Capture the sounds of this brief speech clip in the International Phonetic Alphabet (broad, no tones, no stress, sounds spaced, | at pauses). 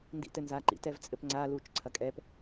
n d ḭ t ɘ n z a ǃ ḭ t ɛ v t͡sʼ ɘ p ŋ͡ǀ a l uː t͡ʃ ǀʰ ɐ kʼ ɛ p